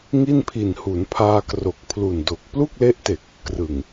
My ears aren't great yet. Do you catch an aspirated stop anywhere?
yes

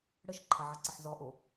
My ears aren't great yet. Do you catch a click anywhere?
yes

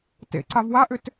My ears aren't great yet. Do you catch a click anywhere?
yes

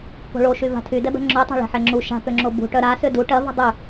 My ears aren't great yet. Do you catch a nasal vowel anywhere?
no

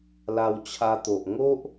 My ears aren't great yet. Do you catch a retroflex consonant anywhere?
no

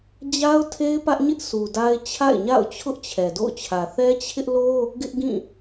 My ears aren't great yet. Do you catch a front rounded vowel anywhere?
no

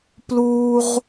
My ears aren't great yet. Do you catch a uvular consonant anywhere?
yes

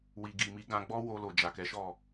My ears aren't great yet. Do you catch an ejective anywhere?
no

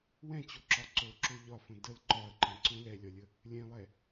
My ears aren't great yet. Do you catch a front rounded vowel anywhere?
no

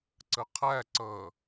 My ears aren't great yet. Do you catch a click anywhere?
yes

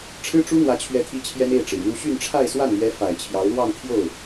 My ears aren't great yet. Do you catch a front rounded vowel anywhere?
yes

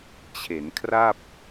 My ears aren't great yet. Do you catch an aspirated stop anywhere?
yes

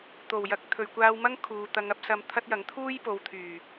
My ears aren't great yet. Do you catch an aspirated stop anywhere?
yes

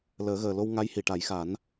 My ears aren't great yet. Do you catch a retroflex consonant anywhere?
yes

